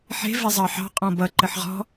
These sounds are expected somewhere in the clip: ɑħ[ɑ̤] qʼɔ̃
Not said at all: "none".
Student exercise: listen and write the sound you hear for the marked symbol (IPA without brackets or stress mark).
ɑ̤